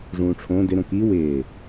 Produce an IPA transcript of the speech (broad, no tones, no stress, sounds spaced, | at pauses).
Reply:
ʐ ũː ʈ͡ʂʰ õ d ɪ ɾ õ k i w ɪː